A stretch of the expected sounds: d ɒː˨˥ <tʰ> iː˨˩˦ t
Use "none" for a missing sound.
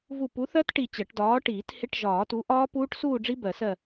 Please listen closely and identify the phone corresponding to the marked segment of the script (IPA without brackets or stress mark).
ʈ